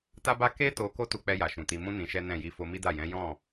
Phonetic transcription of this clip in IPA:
t a˦ b a˦ k e˦ t o˧ k o˦ t u˧ k͡p ɛ˧ j a˨ ʃ ũ˨ t i˧ m ũ˦ n ĩ˧ ʃ ɛ˦ n ɛ̃˦˨ j i˧ f o˧ m i˦ d a˦˨ j ɛ̃˨˦ j ɔ̃˦˨

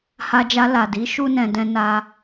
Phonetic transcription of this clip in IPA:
h a˧ d͡ʒ a˧ l a˨ d i˨˦ ʃ u˦ n ɛ̃˧ d ɛ̃˦ n a˦

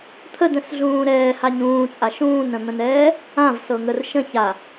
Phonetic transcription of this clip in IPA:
t̪ʰ ə d ə̃ s ɮ ũː ɾ ɛː h a ɲ ũː t͡sʼ a ʃ ũː n ə̃ n̪ ə̃ n ɛː | ã v s ɤ ŋ ə r ʃ ə̃ ç a

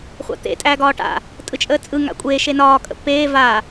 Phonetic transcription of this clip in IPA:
χʷ a̰ t̪ ḛ tʼ æː ɡ ɒː ʈ a̰ | tʼ ɯ t͡ʃʼ əː t͡sʼ ɯ ŋ a̰ kʷʼ eː ʃ e n ɒː kʼ ə̰ pː eː v a

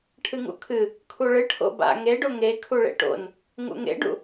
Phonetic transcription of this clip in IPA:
ʈʰ ɨ ŋ ṵ kʰ ɨ | kʰ u ɭ ɨ ʈʰ o̰ b a̰ ŋ e ɖ o ŋ e kʰ u ɭ ḛ ʈ o̰ n | ŋ ṵ ŋ ḛ ɖ ṵ

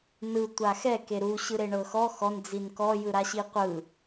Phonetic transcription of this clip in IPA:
n ɯ tʷ a x ɛ k e ɾ u ɕ ɯ ɾ e ɳ ɤ x ɔ x ɔ n d͡z i n k ɔ j ɯ ɾ a ɕ i qʷ ɯ

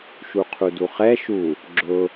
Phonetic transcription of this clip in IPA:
ʃ u qʰ u d u χ ɛ ʃ u | ɡ͡ǁ ʊ

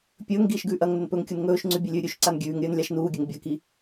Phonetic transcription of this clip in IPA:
pʲ ɵː ŋ ɡ iː ʃ ɡ ʉː ʔ ɐ ŋ n ɵ n p ɵ ŋ kʲ u n ŋ ɵː ʃ ŋ͡ǀ ʉ bʲ ɵ lʲ ʉː ɾʲ ʉ ʃ ǀ a n ɡʲ ʉː ŋ ɾʲ ɵː n lʲ a ʃ n uː ɡʲ ɐ ŋ bʲ ɐ k i

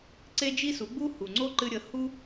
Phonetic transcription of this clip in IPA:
ǀ e˦ d͡ʒ i˦ s u˨˦ ɡ͡b u˦ h u˨ ŋ͡ǀ o˦ ǃ ɨ˧ ɾʲ ə˨˦ h u˦

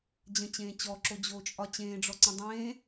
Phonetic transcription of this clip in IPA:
d͡ʑ ə̃ t͡ɕ ẽː t͡ɕ ɔ ǁ o d͡ʑ oː t͡ʃʼ ɒ t͡ɕ ẽː ɖ͡ʐ ɔ ǀ ə̃ dˤ ẽː

